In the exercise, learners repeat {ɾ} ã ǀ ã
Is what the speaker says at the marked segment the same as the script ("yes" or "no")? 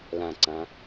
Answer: no